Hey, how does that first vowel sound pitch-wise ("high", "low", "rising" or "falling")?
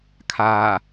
low